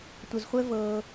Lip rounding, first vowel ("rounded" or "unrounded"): unrounded